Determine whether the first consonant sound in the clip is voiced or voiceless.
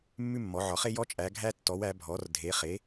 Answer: voiced